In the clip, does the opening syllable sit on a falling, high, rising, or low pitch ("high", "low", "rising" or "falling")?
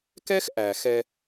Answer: high